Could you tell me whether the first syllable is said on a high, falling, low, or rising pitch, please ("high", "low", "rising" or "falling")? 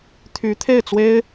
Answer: rising